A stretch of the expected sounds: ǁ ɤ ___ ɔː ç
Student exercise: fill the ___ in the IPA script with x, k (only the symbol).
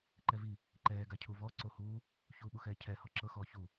x